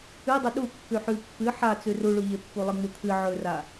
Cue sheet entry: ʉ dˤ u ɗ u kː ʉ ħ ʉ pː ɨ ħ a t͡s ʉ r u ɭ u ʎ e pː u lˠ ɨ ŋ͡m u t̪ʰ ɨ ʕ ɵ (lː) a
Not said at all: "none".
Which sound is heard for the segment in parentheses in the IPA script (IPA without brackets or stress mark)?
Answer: r